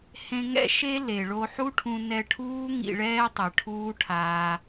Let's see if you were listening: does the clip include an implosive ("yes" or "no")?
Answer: no